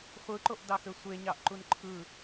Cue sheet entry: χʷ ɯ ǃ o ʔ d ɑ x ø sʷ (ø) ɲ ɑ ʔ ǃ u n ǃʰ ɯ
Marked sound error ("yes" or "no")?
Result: yes